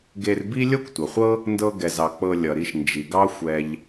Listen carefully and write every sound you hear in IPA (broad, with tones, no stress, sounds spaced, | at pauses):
ɡ e˧ r b i˥ lʲ ɤ˥ kʷ tʷ ʌ˩ χʷ ɤ˥ | n d ɤ˧ ɡ ɛ˩ z ɑ˩ k͡p ɤ˧ lʲ ʌ˩ ɾ i˧ ʃ n d͡ʒ i˩ ɡ ɑ˥ xʷ ɛ˧ ʎ